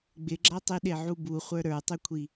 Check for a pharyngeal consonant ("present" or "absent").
present